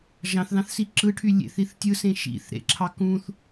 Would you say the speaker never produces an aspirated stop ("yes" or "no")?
no